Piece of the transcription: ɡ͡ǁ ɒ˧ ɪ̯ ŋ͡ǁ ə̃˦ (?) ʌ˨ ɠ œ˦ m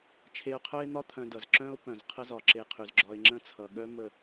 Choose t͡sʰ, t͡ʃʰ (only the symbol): t͡sʰ